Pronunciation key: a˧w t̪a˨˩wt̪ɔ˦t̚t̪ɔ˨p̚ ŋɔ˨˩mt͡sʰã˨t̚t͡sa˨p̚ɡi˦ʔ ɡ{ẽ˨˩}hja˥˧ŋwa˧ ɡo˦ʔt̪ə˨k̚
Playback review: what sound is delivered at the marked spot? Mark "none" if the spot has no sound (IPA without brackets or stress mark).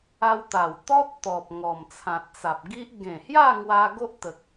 ẽ˨˩